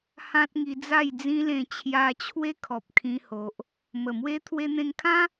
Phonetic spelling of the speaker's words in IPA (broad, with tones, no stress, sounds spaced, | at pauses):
h ã˦ t̚ ŋ i˧ d͡z a˥˧ j d͡z ĩ˦ l ẽ˧ t͡ɕʰ j a˧ t͡ɕʰ w e˦ kʰ ɔ˨ p̚ kʰ ĩ˧ h o˨ ʔ | m ə˨˩ m w e˦ t̪ʰ w e˧ n̪ ẽ˧ ŋ kʰ ã˦